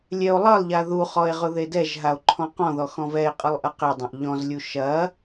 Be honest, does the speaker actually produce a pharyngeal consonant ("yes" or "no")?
no